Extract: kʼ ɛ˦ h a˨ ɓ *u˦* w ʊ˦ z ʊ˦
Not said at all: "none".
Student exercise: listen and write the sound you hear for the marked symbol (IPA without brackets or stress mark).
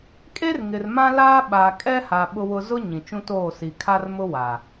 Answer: ʊ˦